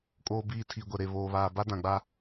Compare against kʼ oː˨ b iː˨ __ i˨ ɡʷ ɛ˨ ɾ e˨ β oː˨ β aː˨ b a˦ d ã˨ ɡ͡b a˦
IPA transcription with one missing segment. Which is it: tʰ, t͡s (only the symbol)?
tʰ